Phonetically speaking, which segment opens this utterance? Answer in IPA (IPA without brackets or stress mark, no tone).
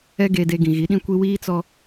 ɛ